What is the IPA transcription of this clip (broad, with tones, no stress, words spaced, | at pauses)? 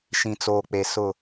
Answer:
ʃĩ˨t͡soː˨k͡pe˨ sʊ˦˨